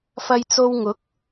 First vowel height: low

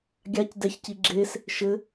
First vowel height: low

